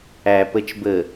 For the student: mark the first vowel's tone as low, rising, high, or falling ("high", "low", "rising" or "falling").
low